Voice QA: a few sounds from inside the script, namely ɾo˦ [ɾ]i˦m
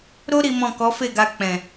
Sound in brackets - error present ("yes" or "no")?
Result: no